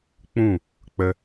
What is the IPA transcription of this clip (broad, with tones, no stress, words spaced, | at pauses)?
k͡pũ˦˨ | k͡pə˧